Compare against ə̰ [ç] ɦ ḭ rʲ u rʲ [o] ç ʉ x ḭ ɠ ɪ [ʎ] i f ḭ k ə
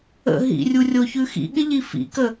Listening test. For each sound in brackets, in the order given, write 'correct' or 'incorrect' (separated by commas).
incorrect, correct, correct